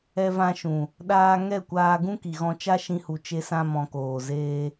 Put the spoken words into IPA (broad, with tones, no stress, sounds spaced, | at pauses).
ɛ˧ v ã˧ ʃ ũ˨ | ɗ aː˧ ŋ ɛ˦˨ kʷ aː˧ ɡ ũ˦ k i˨ ɣ ɔ̃˧ t͡ʃ a˦ ʃ ĩ˧ h u˨ t͡ʃ e˦ s ã˦ m ɔ̃˧ k oː˨ z eː˦